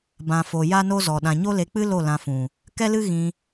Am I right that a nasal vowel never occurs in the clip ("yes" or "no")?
no